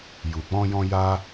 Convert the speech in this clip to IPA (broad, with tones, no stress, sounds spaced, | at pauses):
j u˨ k͡p ɔ̃˧ j ɔ̃˧ j a˦